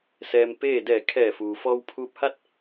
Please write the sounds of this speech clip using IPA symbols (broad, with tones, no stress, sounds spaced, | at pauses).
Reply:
s ɛː˧ m p eː˥˨ d ɛː˧˩ kʰ ɛː˧˩ f uː˩ f ɔː˧ w pʰ uː˧ p̚ h a˥˨ t̚